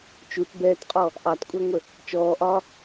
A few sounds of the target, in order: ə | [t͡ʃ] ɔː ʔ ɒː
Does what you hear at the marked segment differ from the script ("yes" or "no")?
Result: no